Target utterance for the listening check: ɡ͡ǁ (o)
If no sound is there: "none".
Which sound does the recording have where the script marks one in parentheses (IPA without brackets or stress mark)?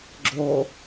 o